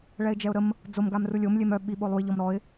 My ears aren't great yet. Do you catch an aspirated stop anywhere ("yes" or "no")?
no